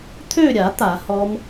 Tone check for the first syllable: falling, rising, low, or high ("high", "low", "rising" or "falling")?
falling